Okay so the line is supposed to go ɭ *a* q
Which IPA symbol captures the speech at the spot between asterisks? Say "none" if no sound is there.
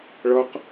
ʌ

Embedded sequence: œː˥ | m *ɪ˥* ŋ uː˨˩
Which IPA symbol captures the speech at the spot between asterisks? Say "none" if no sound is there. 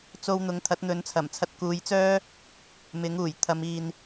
ɪ˨˥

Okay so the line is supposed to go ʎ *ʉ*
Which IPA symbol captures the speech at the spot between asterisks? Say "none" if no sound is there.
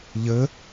ɘ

